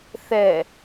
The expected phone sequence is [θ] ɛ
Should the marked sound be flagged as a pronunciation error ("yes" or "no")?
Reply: no